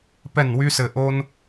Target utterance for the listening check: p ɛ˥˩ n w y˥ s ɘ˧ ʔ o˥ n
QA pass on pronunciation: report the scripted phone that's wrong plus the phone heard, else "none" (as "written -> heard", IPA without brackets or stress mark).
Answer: none